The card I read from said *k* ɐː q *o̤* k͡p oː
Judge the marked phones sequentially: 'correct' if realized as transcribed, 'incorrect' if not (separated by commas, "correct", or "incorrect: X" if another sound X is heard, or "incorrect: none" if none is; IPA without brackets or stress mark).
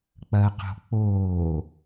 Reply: incorrect: k͡p, correct